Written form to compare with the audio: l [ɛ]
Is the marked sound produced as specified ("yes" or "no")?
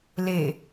no